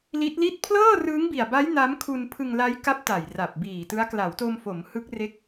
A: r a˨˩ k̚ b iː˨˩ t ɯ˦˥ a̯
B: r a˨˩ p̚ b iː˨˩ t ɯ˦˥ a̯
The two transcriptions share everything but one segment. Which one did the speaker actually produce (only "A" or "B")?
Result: B